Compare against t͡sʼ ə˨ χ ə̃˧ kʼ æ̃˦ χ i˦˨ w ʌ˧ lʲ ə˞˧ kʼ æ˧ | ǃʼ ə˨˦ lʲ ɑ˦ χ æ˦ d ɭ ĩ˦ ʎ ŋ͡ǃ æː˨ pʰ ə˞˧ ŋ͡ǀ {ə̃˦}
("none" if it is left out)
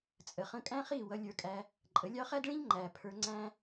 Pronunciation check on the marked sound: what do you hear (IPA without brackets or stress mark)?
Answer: æ̃˦